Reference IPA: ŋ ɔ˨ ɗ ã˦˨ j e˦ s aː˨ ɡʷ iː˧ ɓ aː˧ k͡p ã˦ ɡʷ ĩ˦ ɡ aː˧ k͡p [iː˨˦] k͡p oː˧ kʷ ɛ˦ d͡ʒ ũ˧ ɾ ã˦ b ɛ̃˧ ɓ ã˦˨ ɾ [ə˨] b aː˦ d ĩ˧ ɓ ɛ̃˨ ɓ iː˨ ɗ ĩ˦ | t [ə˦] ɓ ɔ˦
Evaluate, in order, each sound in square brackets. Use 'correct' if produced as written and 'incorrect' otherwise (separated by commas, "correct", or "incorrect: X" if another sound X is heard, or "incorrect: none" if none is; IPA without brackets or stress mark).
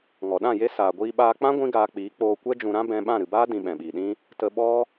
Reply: correct, incorrect: ɨ˨, incorrect: ə˧